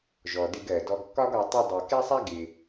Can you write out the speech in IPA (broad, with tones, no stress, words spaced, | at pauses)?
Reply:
ʒɔ˨dɪ˧ɡɜ˨ dɔ˧ɡkːɒ˦ɡɒ˧ tˤɛ˦dˤɜ˧ kɛ˦sˤæ˦ ɡɪ˧